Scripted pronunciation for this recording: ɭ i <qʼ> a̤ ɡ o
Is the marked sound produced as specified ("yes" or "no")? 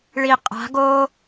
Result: yes